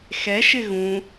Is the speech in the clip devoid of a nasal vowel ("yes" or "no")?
no